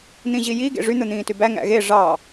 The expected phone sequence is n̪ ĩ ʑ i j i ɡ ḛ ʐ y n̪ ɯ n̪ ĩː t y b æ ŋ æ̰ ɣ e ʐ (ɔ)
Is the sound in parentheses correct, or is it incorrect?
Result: incorrect